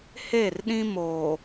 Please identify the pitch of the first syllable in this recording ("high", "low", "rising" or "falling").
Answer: falling